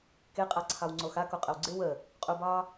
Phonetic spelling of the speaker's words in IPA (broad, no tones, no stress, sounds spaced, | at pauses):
k e qʼ a ǀʰ ɑ w ŋ͡ǀ o x a k o qʼ ə w ɡ͡ǀ ɪ w ə | qʼ u b ɑ